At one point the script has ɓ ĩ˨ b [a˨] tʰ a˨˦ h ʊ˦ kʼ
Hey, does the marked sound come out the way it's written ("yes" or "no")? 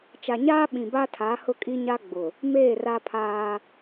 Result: no